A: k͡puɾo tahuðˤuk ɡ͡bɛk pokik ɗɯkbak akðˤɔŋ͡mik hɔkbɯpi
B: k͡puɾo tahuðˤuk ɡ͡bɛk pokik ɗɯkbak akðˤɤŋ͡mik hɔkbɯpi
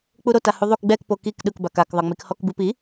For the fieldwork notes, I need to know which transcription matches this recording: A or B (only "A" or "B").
B